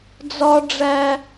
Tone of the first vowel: high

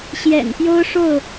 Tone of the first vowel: low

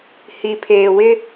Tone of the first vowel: low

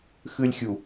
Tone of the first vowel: high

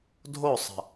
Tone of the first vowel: falling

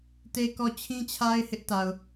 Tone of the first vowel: high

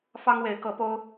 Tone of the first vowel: high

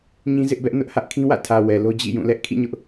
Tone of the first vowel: high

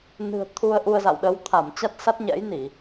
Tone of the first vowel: low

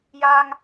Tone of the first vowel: high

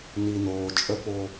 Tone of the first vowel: low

